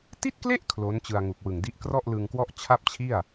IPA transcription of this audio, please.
ti˥˩t̚kle˥˩ʔ kʰlo˦˥nt͡ɕɯ˧a̯ŋu˨˩k̚wɯ˨˩ŋ di˦˥ʔkrɔ˥˩ʔlɯ˧ŋkwɔ˥˩ʔ t͡ɕʰa˥˩p̚t͡ɕʰi˥˩a̯

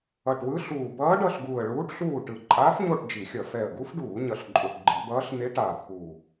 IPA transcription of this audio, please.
ʌ˨˩ʈwɯ˧˥ɬuː˨˩ bʌː˧˥ɖʌ˦˨ɬɡuː˨˩ə̯ ɭuː˧˥ʈɬuː˦˨ʈɯ˨˩ ǃʼaː˧˥fɲo˦˨ʈ d͡ʒi˧˩˧xʲʌ˧˩˧ fɛ˨˩ə̯ɡu˧˥fɖuː˧˩˧ ɲʌ˨˩ɬǃʼu˨˩ʈɡ͡ǃi˧˩˧bʌː˧˥ɬ n̪e˧˥ʈaː˨˩t̪ʰuː˨˩

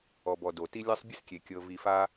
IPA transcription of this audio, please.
ɔ˨bɔ˨do˩ ti˥ lʲa˥sˤbʲɯ˥s kʲe˩ kʲɤ˨ vi˨fa˥

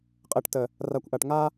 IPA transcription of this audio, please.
qʼəː˨ʈtə˨ | ra˨kʷʔa˨ʈŋa˦

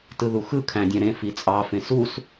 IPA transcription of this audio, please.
tɯðuxɯ kʰæ̃dʲæ̃ɾẽ fit͡sʼɑ fẽsus

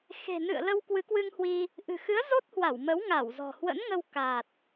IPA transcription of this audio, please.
xe̤˨˩nɨ̰˧˨ə̯ lə˧wkwɨ˨˦kwɨ˧ŋhwi˧ | ʔɨ̤˨˩xɨ˨˦ə̯zo˦˥t̚ hwa˧˩wmə˨˦w ŋa˧˩wzɔ̤˨˩ hwə̰˧˥nŋə˧w ka˨˩t̚

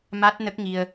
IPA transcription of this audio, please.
ma˦˥t̚nə˦˥k̚ŋi˧ə̯

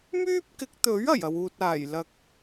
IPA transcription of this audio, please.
myː˥p̚kɪ˨˥k̚t̪ɵ˨˥ɥ ɐ˨˩jɐ˨wuː˨t̚aː˨˩j lɐ˨k̚

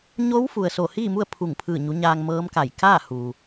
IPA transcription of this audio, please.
ɲo˧˥w fu˩ə̯ so˧˩hiː˥˨mu˥˨ə̯ pʰu˧˩ŋpʰɯː˧˩ɲu˩˧ ɲaː˧ŋmɤː˧˥mka˧˩j kaː˥˨ huː˩

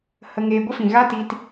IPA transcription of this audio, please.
hə˧ŋeː˧ ɡʷə˦fĩ˨ ɣa˦ ti˧t

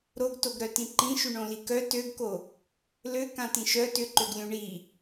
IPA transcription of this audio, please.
ɾoɡtoɡɾœtĩ ǃĩʃyɳõli kœ tøɡko | løkãtĩʃ œ tʏǃøɡlʲũ ɳi

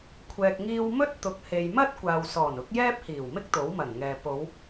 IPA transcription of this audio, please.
kʷʰɛː˨k̚ŋiː˧wmɵ˥t̚ t̪ʊ˨˥k̚he˨jmɐ˥t̚ kʷaː˨w sɔː˨˩nʊ˨˥k̚ jɛː˥p̚hiː˨˩wmɪ˥k̚ t̪o˨˥wmɐ˨˩nŋɛː˨ po˨˧w

